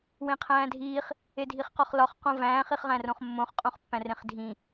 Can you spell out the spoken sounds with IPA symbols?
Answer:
w ẽ qʰ æ̃ː dʱ iː χ | e dʱ i χ q ɒ χ l ɒ χ q õ v æ̃ː χ i χ ʁ æ̃ r õ χ mː õ χ qʼ õ χ pː æ̃ r ẽ χ dʱ ĩ

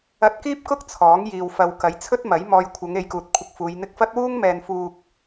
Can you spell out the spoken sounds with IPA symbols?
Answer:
ɐ˧ t̚ k iː˥ p̚ k ʊ˥ k̚ t͡sʰ ɔː˨˥ ŋ j iː˨ w f ɐ˨ w k ɐ˨˥ j t͡sʰ ɵ˥ t̚ m ɐ˨˥ j m ɔː˨ j kʷʰ ɐ˨˧ ŋ e˨˧ j k uː˨ t̚ kʷʰ ɪ˧ k̚ f uː˨˧ j n̪ ɪ˧ k̚ f ɐ˥ t̚ w uː˥ ŋ m ɛː˨ n f uː˨ k̚

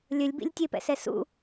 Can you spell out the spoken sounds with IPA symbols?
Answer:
lʲ ɵ lʲ b ḭ lʲ tʲ e p ɛ̰ s ɛ s ṵ

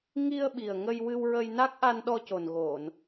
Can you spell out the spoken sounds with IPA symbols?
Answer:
ŋ i˧ ə̯ ɓ i˨˩ ə̯ ŋ ə˧ j w ɨ˧ w ɹ ə˧ j n a˦˥ k̚ ʔ a˧ n ɗ ɔ˧ c o˨˩ n ɣ o˨˩˨ n

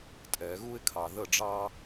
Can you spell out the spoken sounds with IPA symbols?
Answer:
tʼ ɛ˨˩˦ ɣ u˥ ɪ̯ kʰ ɑ˨ ð ə˥˨ ɖ͡ʐ ɑ˥

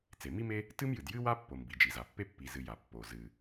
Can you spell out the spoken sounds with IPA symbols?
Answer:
t͡s e˩ m i˥ m e˥ | t ɨ˥ m j ɨ˩ d j ɨ˥ w a˥ pː o˩ m b i˩ d͡ʒ i˩ z a˩ pː e˥ pː i˩ z ɨ˩ j a˩ pː o˩ z ɨ˩

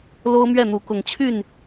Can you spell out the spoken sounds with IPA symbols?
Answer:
l o˦ ʊ̯ m ɥ ɛ˥˨ n̪ u˨˦ k ʊ˨˦ ŋ t͡ɕʰ y˥˨ n

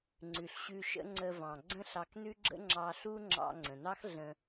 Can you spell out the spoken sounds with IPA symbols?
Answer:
ŋ͡ǀ ʉ˩ ɬ ɕ ʉ˧ ʃ ə̰˥ ŋ͡ǀ ə˧ v ɑ̃˩ ɡ͡ǀ ə̃˥ ɬ ɑ˧ k n ʉ˥ ɡ͡ǁ ə̰˥ ŋ͡ǁ ɑ˧ ɬ u˥ ŋ͡ǁ ɑ̰˧ ŋ͡ǀ ə̃˩ n ɑ˥ x ɮ ə̃˧

